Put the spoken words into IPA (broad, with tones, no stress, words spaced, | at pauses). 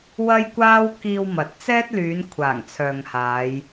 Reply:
wɐ˥jkʷaː˥w kiː˧w mɐ˨˥t̚ t͡sɛː˥t̚ lyː˨˧n kʷʰaː˨˩ŋt͡sʰœː˨ŋhaː˨˧j